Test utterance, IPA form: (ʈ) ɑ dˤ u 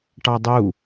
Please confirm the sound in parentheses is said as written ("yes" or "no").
yes